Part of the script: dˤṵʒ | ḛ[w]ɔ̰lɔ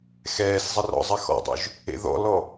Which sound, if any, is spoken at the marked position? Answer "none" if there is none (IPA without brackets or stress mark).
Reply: ð